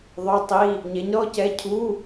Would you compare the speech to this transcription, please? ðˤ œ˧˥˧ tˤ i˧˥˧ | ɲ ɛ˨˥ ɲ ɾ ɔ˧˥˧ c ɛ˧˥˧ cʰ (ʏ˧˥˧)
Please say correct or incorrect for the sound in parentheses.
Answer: incorrect